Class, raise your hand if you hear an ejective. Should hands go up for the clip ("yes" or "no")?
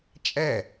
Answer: yes